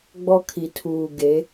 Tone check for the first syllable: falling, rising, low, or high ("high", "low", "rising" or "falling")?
high